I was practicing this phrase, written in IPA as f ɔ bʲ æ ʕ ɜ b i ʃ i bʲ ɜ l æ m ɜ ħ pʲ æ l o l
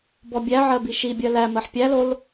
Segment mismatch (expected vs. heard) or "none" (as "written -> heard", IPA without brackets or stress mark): f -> b